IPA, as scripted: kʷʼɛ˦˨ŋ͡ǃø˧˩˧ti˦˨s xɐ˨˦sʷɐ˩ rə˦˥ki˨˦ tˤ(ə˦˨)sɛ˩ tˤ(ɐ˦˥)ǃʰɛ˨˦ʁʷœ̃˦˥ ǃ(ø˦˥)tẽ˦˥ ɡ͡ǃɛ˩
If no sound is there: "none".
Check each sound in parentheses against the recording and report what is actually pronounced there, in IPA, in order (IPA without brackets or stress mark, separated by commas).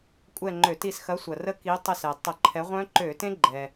ə˦˨, ɐ˧˩˧, ø˧˩˧